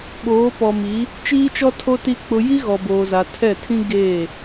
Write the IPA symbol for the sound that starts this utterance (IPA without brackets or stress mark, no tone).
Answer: ɓ